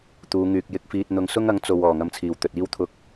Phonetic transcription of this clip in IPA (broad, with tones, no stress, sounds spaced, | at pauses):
t̪ uː˨˧ ŋ yː˨ k̚ j ɪ˧ k̚ f iː˧ t̚ n̪ ʊ˧ ŋ s ʊ˥ ŋ ɐ˨˥ ŋ t͡s o˨ w ɔː˨˩ ŋ ɐ˧ m t͡sʰ iː˨˩ w t̪ ɵ˨ t̚ iː˥ w t̪ʰ ʊ˧ k̚